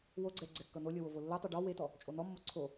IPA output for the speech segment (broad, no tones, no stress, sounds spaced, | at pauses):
w o ɡ͡ǀ ɛ ɡ͡ǀ ɛ kː ɤ n o lʲ ɤ w o v o lː ɤ tˤ o ɖ ɔ w e t ɔ | t͡ʃʼ o n ɔ mː o ǀʰ o